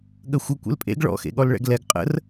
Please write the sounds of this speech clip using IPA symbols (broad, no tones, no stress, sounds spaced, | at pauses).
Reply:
ɠ ə xʷ ə kʷ ḛ l pʼ ḛ ɡ ɭ ɔ̰ x ḛ ɠ ɔ l ɭ ɛ̰ ɡ l ɛ ɡ qʼ ə̰ r